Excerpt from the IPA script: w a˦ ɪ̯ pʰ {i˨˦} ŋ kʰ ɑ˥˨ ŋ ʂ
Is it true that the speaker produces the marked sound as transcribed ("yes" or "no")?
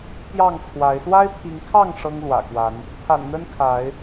yes